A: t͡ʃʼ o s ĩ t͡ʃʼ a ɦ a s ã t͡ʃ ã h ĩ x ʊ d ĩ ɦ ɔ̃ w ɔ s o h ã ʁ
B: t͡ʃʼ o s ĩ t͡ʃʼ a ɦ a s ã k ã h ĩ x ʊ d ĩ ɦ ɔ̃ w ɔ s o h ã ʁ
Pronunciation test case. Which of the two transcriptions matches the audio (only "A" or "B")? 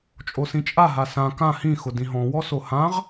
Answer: B